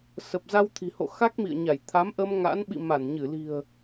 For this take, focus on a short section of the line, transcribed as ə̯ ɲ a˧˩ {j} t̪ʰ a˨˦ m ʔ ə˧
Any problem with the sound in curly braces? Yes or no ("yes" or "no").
no